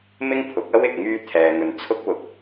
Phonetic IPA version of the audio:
mɪ˥ŋpʰʊ˨˥k̚ɐ˥w ɪ˨k̚ŋyː˧ t̪ʰɛː˨ŋɵ˨n t͡sʰʊ˥k̚wʊ˨˥k̚

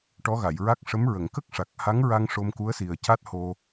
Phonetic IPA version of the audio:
ʈɔ˧˥ɣa˨˩˨jɹa˦˥k̚ ʂə˧˥m ɹə˨˩˨ŋkə˦˥k̚ʂa˨˩k̚ ha˧˥ŋɹa˧ŋ ʂo˧mku˧˥ə̯si˨˩ə̯ ca˦˥t̚ho˧

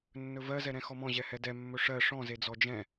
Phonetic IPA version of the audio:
nːɵvɜ zɛɾɛ̃xɔmɔ̃ ʑɛhɛdɛ mːɵʂɜ ʂɔ̃ zed͡zɔd͡ʒɛ̃

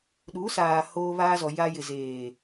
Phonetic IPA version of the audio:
ɗu˨˦saː˨ hoː˦βaː˦zɔ˨ ja˦ jɪ˨zeː˨

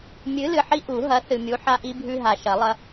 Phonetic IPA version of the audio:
mʲɨ˨˥lɨ˨ħi˦ ʔu˨˩˦ ɦɐ˨˥θɨ˨mʲu˨˥ ħa˦ʔi˦bʱʉ˦ɦa˨ ʃɐ˨˩˦lˠɐ˦

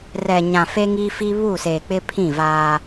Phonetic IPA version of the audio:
rɛ˨ɲã˨ fe˦ŋi˦fi˦ βu˦˨se˨k͡pɪ˦ pʰĩ˦˨vaː˦

